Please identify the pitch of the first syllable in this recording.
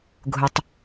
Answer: low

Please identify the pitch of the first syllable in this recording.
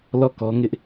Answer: falling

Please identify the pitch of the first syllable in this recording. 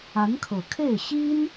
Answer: rising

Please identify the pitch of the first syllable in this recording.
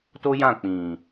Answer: high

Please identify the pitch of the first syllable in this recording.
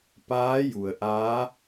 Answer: rising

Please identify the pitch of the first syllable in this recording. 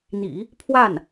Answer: low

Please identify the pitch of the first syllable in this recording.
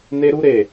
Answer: high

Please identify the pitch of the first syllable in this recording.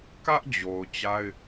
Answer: high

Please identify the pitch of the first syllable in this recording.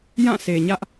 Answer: falling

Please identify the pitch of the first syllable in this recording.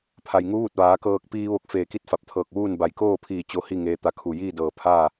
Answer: low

